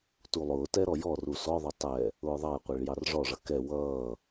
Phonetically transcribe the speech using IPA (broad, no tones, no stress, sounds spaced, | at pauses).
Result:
t u lˠ ʊː t ɛ ɾ ɔ j ɔ r u s ɔ ðˤ ʊ tˤ ɛ | ʊː ðˤ ɑ j qʷ ɛ ɭ j ɑ r ʐ ɔ ʐ ʌ k ɛ w ʌː